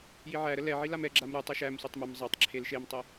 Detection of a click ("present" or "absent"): present